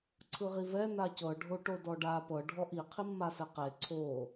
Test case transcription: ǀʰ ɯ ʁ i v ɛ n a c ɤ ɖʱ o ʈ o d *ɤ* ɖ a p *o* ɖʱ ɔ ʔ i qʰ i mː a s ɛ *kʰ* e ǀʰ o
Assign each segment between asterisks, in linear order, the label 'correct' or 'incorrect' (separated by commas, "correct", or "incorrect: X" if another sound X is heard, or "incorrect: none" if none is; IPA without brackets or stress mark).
incorrect: ɔ, incorrect: ɤ, incorrect: q